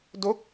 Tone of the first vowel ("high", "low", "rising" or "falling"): falling